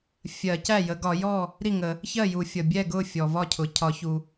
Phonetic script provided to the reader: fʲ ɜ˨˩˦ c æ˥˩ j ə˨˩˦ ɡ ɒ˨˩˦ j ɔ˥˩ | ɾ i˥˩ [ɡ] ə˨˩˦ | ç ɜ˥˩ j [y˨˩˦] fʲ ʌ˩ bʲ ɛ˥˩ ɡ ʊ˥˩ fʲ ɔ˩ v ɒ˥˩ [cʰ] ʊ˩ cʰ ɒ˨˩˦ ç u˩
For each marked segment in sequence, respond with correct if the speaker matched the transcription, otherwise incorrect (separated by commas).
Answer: incorrect, incorrect, correct